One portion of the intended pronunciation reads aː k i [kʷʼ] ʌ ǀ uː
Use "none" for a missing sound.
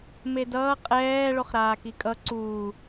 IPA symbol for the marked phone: kʼ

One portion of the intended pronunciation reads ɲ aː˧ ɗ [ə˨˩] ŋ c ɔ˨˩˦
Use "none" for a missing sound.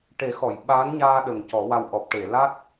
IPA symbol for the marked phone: ə˨˩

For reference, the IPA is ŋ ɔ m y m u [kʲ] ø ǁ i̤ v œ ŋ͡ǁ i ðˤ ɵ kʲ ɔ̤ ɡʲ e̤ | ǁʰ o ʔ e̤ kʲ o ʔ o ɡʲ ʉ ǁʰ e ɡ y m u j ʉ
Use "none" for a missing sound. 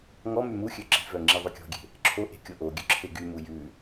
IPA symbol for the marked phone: xʲ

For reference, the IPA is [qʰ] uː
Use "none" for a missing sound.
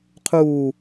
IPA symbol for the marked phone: qʰ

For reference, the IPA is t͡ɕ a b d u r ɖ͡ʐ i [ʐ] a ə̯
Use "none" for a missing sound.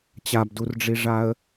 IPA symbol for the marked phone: ʐ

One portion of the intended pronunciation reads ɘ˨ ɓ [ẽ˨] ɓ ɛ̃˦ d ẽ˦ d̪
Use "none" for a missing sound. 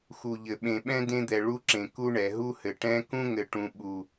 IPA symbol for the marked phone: ẽ˨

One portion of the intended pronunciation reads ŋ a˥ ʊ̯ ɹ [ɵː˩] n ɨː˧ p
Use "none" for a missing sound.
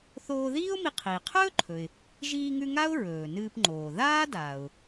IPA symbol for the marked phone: ɵː˩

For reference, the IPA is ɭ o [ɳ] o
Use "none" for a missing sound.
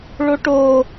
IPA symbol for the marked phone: ʈ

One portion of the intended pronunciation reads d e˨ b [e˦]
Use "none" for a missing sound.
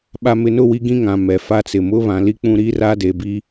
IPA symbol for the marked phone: i˦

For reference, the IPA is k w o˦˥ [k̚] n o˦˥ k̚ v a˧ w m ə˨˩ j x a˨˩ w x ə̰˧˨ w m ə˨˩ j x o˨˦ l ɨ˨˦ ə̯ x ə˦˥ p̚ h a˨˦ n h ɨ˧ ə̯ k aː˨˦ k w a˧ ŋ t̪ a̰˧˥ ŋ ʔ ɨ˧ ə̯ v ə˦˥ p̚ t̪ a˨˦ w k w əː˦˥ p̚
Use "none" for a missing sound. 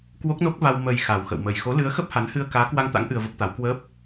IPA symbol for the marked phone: k̚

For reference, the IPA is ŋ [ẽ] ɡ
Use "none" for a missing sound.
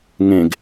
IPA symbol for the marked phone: ẽ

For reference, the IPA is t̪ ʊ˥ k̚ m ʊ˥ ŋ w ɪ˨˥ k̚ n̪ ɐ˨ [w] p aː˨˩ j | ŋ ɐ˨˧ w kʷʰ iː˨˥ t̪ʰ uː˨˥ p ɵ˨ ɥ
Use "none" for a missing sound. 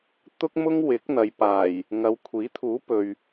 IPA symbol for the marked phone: j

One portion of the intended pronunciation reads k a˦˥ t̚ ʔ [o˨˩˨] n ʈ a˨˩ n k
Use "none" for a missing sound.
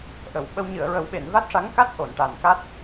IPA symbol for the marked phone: o˨˩˨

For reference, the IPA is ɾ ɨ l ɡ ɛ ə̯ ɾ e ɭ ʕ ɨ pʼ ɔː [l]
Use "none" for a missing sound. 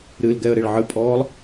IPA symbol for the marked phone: lˠ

